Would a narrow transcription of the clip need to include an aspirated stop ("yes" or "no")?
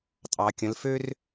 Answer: no